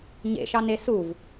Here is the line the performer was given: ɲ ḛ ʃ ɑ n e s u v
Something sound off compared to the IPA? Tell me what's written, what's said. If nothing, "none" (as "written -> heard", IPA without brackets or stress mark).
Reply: none